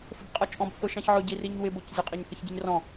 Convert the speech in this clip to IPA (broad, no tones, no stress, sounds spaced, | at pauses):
f ə b qʼ ɔ t͡ʃʼ ɔ̃ b θ ʊ ʃ ɑ̃ ç ʕ ʊ ɟ i r i ɲ w ɪ b ʊ c zʲ ə qʼ i ɲ θ ə ç ɟ i ɲ r ɔ̃